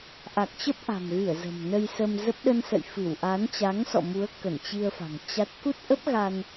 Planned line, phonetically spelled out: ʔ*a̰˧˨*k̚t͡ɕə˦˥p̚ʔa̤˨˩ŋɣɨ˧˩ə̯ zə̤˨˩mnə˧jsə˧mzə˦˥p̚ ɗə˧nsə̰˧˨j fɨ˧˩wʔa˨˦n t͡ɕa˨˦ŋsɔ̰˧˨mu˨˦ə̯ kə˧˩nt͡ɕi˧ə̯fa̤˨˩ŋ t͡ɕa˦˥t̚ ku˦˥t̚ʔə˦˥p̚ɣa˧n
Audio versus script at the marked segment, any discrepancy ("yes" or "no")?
yes